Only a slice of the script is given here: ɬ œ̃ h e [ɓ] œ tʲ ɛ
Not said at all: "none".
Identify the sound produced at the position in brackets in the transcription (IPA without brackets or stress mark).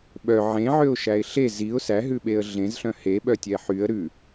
ɓ